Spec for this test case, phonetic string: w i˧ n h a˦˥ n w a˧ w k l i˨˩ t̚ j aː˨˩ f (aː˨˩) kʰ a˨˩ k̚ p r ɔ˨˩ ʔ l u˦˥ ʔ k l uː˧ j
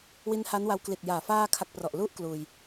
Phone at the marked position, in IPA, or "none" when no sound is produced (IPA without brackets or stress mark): aː˧